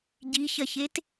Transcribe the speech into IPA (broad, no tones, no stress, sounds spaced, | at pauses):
ɟ i ç ɐ ç e t